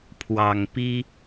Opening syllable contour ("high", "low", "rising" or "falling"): low